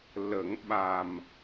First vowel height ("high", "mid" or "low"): mid